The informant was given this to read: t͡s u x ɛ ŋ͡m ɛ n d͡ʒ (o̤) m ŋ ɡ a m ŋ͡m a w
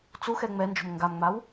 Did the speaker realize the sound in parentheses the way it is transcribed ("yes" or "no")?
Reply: yes